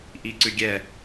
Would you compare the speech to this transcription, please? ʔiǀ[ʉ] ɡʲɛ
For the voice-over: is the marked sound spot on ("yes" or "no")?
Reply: yes